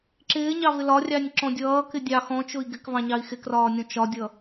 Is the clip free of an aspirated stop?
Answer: yes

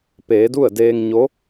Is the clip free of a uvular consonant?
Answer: yes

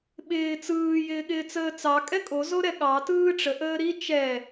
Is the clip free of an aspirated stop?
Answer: yes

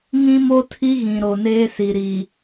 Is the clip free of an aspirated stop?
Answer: no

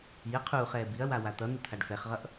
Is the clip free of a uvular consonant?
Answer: no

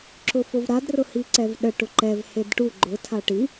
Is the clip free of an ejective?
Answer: yes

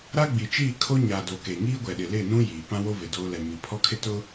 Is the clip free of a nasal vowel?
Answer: no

